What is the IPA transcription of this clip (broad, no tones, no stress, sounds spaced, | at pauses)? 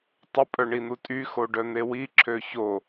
tˤ ə pʼ œ ɳ i n̪ u tʼ y x o ɖ œ n̪ e w i ǁʰ ø ç o